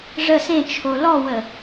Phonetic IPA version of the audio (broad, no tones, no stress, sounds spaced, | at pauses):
ʐ ə s ẽ t͡ʃʰ o l ɔ w ə